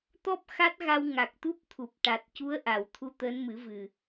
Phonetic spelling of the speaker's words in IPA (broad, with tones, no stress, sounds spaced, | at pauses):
t̪ ɔ˦˥ p̚ x a˦˥ t̚ ɣ a˧ w ŋ a˨˩ k̚ t̪ u˦˥ p̚ t̪ʰ u˨˩ p̚ ʈ a˨˩ t̚ c u˧˥ ə̯ ʔ a˨˩˨ w t̪ʰ u˧ t̪ əː˧˥ n m ɨ˨˩˦ v ɨ˨˩